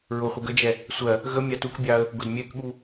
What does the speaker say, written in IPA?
ɹʊχʷə ɡəd͡ʒɛ | sʷɜ | ɣə mʲɑtukbʲɑə̯ | ɡʊdmʲɛkɠu

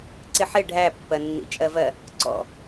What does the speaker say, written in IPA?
ǀɪħɪ ɖʱæpːɜnːḭ t͡ʃʼɜvɜ | ǀɔ̰

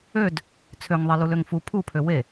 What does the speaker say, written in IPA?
ød | t͡sʰøŋðˤeluløŋ fu pʰupʰø we

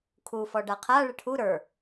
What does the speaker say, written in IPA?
kʰu fɔɖaqʰa ɭɘʈʰu ɾə˞

